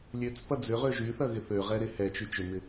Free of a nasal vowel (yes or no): yes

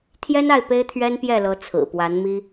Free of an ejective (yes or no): yes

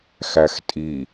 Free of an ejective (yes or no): no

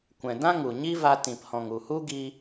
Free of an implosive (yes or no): yes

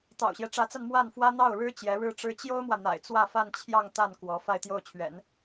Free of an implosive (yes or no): yes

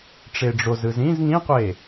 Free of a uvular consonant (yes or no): no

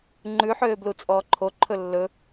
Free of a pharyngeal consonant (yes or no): no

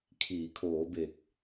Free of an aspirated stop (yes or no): no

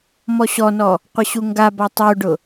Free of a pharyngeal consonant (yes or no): yes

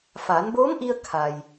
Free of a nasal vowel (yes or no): yes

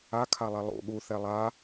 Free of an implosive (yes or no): no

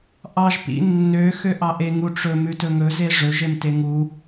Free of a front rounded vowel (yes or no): no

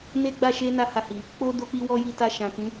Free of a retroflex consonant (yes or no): yes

